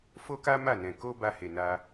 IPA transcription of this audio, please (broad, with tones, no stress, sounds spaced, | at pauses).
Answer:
f o˦ k a˦ m a˦˨ n ɛ̃˨ k o˧ b a˧ h e˨ n a˧